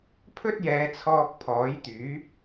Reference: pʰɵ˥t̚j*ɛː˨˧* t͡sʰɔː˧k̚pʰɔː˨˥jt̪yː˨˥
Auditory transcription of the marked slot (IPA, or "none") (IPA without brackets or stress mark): ɛː˨˧